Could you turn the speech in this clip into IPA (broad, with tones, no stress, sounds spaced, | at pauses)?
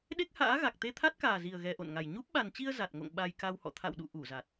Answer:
ɗ e˦˥ k̚ h a̰ː˧˥ ɣ a˨˩ k̚ t̪ e˧ t̪ʰ a˦˥ t̚ k aː˨˩ z i˨˩ ə̯ ɣ ɛ˨˩ ʔ o̰˧˨ n ŋ a˨˩ j ɲ u˦˥ p̚ ɓ a˨˩ n t͡ɕ i˧ ə̯ z a˨˩ t̚ ŋ o̰˧˨ ŋ ɓ a˧ j k a˧ w h ɔ̰˧˨ t̪ʰ a̰˧˨ w ɗ ṵ˧˨ ʔ u˧˩ z a˨˩ t̚